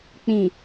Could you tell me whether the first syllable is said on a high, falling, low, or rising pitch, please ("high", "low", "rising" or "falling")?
low